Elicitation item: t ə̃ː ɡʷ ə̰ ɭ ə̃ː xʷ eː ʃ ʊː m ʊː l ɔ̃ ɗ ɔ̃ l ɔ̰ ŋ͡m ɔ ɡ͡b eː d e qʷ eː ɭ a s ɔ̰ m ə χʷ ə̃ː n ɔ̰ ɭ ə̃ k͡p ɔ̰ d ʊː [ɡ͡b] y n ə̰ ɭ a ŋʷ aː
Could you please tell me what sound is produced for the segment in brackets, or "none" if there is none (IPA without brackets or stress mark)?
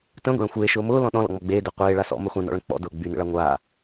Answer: ɡ͡b